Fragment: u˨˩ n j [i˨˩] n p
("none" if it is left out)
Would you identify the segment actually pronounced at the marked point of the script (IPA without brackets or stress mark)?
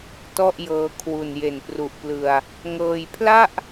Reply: e˨˩